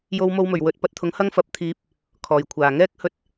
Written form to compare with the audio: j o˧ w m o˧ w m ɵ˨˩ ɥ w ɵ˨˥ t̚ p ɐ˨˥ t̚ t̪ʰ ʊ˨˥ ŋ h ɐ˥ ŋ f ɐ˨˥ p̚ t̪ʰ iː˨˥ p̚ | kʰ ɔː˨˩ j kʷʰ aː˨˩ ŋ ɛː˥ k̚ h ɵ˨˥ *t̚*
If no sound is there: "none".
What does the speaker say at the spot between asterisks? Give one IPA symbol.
t̚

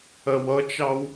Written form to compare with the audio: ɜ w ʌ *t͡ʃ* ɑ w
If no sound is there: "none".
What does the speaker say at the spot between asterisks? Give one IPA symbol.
t͡ʃ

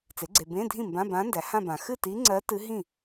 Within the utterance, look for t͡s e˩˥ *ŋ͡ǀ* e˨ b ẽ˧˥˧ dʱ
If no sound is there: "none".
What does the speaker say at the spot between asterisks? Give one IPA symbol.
ɡ͡ǀ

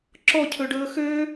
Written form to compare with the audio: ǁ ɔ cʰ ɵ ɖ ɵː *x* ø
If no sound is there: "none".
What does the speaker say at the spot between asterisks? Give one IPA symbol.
x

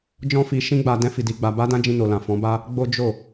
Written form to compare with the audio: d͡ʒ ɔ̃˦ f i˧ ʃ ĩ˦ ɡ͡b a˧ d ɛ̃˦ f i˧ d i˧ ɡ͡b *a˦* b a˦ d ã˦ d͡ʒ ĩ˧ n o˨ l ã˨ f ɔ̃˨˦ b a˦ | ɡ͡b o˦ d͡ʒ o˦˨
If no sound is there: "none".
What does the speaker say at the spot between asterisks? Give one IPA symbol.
a˧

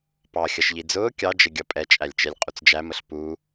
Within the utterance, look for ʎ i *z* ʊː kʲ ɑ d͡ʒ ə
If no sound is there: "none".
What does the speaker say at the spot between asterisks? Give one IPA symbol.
d͡z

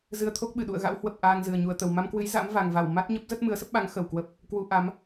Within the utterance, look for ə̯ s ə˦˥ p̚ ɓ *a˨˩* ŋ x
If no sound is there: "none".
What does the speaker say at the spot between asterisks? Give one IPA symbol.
a˨˦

